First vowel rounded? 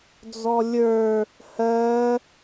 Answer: yes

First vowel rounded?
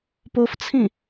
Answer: yes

